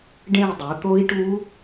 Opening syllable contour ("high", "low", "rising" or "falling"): falling